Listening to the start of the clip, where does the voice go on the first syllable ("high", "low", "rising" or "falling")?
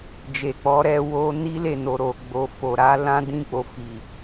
low